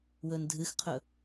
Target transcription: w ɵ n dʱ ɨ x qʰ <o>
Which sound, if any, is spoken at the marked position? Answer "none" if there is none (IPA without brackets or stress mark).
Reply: ɵ